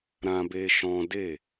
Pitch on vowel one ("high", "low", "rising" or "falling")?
high